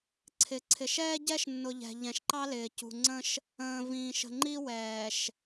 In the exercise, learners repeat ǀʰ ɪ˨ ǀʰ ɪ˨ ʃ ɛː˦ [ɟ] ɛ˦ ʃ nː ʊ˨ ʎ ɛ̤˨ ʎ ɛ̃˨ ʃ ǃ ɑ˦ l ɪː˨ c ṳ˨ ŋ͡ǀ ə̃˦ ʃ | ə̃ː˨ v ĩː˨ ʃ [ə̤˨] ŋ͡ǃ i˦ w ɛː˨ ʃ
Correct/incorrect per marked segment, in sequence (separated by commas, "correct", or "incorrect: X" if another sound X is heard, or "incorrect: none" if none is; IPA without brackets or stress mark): correct, correct